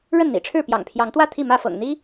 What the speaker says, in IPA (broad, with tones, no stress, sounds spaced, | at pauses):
ɻ ə˥˨ n n̪ ḭ˨˩ ʈ͡ʂʰ ɻ̩˥˨ p j ɑ̰˨˩ ŋ pʰ j ɑ˨˦ ŋ t̪ w ä˥˨ t̪ʰ i˥˨ m ä˥˨ f ɤ̰˨˩ ŋ n̪ i˦